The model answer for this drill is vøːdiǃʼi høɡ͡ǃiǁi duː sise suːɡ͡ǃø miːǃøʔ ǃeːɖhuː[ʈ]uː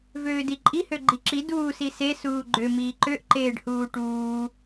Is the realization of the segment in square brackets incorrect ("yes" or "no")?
no